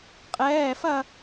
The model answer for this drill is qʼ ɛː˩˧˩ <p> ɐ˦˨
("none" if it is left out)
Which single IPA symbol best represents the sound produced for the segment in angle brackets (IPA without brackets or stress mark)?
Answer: f